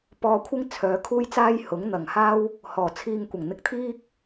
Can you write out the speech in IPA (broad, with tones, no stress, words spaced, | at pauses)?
pɔː˧kʷʰɪ˥ŋ t͡sʰœː˨˧kʰuː˥jt͡saː˥j hʊ˨˥ŋn̪ɐ˨˩ŋhaː˥w | hɔː˨˩t͡sʰiː˧ŋkʷɐ˨˩ŋ n̪ɪ˧k̚t̪ʰiː˥k̚